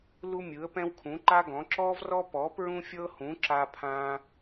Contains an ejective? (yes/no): no